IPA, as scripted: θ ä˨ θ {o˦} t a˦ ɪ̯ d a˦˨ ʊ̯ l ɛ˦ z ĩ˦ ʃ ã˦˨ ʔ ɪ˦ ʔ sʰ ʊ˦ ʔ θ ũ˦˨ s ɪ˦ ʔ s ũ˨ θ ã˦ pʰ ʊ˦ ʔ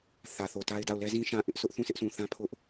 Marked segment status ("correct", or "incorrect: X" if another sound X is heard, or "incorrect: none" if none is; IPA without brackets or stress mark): incorrect: o˨